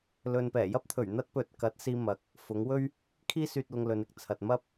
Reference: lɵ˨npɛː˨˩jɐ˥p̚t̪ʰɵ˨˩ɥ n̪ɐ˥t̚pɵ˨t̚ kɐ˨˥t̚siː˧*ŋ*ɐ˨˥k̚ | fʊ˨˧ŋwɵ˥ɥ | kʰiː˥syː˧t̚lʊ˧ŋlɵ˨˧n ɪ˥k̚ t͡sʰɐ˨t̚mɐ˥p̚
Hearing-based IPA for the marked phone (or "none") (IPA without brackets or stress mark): m